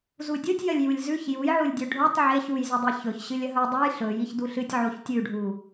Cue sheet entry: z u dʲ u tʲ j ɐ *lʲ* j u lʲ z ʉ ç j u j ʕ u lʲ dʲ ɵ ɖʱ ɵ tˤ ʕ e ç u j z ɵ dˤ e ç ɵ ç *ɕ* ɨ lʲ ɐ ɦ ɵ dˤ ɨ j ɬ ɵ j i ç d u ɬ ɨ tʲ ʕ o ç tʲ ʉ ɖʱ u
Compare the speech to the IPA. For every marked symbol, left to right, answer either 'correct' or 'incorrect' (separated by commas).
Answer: correct, correct